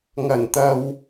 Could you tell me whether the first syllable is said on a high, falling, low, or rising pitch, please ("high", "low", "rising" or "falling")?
low